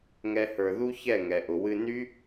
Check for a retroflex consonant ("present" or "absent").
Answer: absent